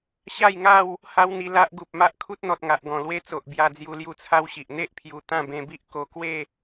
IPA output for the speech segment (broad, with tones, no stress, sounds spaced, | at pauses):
ɕ a˥˧ j ŋ a˥˧ w | h a˦ w n̪ i˧ l a˦ ʔ ɡ u˨ p̚ m a˦ ʔ kʰ u˦ t̚ n̪ ɔ˨ t̚ ŋ a˨ ʔ ɡ ɔ̃˨˩ l w e˦ t͡s o˨ ʔ b j a˧ d͡z j u˧ l j u˧ t͡sʰ a˦ w ɕ i˨ ʔ n̪ e˦ ʔ pʰ j u˨˩ t̪ ã˥˧ b ẽ˧ b i˦ ʔ k o˧ k w e˥˧